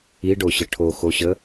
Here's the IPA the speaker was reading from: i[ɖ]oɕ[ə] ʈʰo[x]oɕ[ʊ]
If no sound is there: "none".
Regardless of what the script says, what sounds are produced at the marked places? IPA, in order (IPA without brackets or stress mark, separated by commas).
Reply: ɖ, ə, x, ə